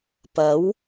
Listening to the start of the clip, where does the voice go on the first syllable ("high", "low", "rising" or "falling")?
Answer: rising